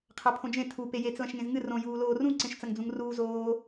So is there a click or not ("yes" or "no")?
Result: yes